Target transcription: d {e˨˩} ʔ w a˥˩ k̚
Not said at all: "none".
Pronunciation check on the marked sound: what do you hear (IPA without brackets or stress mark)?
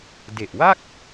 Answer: e˨˩